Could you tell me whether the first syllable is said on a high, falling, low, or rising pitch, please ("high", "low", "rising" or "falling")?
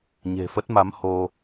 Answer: low